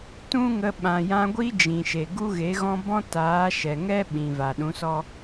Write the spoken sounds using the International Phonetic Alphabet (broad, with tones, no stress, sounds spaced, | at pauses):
t ũ˦ ŋ ə˧ ɓ ã˨ j ã˧ ɡʷ i˦ d͡ʒ ĩ˨ ʃ e˨ ɡ u˦ ɣ e˨˦ ɣ ɔ̃˦ b ɔ̃˦ t aː˨˦ ʃ ɛ˨ ŋ ɛ˦ ɓ ĩ˨ v a˨ ɗ ũ˨˦ s ɔ˦